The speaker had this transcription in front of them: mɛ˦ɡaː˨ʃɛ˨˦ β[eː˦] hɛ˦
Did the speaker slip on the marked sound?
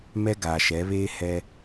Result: no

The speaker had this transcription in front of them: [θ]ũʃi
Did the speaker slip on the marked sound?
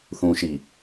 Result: no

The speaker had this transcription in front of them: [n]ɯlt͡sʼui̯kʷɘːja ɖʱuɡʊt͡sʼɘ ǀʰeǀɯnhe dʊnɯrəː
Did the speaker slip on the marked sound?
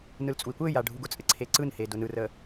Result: no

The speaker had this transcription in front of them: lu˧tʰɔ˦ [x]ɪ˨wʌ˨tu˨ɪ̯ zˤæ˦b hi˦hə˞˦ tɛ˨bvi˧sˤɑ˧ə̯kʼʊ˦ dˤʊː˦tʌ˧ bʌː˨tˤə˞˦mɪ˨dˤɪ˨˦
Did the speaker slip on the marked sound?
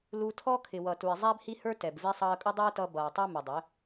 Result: yes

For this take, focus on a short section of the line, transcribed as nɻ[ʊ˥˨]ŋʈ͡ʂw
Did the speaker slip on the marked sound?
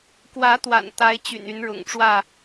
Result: yes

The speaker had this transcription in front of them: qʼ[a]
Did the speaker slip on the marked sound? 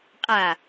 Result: no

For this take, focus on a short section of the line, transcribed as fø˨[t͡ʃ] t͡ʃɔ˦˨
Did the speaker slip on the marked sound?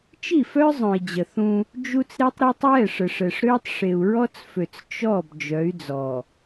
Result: yes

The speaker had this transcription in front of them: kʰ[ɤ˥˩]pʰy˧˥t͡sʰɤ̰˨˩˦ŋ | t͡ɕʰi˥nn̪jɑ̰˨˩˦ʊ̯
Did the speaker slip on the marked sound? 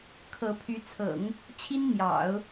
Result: yes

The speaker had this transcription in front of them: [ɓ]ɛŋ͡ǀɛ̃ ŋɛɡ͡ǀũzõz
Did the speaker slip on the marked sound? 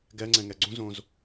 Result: yes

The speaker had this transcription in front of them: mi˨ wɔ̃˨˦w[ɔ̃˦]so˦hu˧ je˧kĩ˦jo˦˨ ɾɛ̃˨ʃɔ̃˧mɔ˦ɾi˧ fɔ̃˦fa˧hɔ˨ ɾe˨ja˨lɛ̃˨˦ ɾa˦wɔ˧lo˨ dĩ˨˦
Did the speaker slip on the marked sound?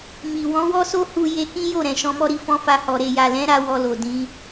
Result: yes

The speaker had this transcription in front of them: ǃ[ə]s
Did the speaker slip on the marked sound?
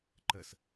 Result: no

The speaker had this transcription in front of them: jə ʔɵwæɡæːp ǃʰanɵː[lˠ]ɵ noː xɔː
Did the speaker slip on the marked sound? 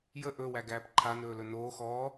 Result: yes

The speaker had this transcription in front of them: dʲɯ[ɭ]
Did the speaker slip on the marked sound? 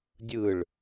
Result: no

